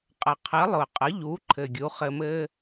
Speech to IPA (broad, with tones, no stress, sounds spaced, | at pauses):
qʼ ə˩ qʰ ɘ˩˥ lˠ ʊ˩ qʼ ə˩˥ ʎ u˩˥ ǃʰ ɘ˩ ɡʲ u˩˥ χ ɘ˧ m ɘ˥